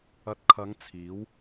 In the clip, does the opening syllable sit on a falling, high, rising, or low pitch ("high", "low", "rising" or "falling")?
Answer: rising